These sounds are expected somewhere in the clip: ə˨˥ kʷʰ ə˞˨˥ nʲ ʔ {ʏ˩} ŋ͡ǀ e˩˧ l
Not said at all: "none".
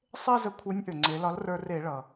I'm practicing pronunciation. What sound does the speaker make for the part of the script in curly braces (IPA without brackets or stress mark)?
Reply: ʏ˩